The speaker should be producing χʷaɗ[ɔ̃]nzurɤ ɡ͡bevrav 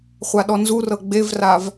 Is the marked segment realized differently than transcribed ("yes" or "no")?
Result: yes